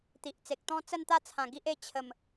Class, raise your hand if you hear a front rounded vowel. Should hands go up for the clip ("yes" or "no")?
no